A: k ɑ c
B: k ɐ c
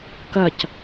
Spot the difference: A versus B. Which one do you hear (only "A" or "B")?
B